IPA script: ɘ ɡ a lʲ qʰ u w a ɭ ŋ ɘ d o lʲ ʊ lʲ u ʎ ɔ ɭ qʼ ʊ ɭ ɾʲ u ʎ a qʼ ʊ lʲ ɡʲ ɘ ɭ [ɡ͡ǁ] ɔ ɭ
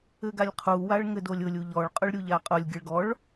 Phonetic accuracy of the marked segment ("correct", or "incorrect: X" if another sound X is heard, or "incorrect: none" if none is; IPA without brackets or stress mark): incorrect: ɡ